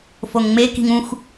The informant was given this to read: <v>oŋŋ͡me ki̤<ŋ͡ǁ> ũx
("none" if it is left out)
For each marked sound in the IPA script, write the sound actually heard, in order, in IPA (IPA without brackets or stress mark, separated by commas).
f, ŋ